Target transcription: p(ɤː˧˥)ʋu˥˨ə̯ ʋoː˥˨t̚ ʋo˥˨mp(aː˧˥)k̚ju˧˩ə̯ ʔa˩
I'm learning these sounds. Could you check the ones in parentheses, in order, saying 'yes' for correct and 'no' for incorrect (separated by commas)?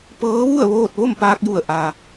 yes, no